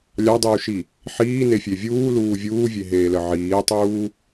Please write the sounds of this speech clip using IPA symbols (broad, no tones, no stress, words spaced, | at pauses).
lʲɑdˤuːʃi | ħiːnefʲe vʲuːluː vʲuːvʲeɦeːlə ʕiːtˤuː